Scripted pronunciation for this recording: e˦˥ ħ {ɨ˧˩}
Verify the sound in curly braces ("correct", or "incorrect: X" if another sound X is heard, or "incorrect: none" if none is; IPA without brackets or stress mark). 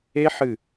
correct